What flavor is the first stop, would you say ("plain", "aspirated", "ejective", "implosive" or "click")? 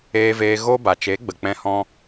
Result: plain